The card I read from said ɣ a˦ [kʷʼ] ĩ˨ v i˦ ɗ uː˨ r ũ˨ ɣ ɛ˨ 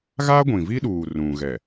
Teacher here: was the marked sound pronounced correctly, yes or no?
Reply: no